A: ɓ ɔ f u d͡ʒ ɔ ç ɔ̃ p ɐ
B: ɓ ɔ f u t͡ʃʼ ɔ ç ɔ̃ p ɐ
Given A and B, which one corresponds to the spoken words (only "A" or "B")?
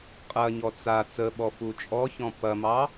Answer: B